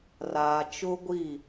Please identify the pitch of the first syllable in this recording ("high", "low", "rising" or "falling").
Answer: low